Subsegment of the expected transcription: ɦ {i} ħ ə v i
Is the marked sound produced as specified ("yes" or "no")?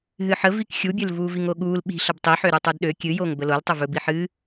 no